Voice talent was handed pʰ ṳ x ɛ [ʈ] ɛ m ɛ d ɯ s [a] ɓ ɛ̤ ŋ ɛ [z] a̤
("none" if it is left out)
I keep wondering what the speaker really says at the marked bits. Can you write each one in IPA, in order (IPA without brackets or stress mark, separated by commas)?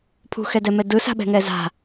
d, a̤, z